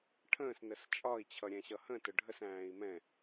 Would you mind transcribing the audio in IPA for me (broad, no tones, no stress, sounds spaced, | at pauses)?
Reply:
ʈʰ ə̃ː s n ə s t͡ʃʼ ɒ i̯ t͡ɕʰ ʌ ɾʲ ɛ̃ ɕ ʌ h ə̃ t ʊ ɖʱ ə s æ̃ː i̯ m ɛ̃